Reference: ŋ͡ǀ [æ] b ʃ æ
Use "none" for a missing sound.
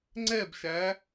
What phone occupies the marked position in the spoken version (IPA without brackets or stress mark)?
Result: ɛ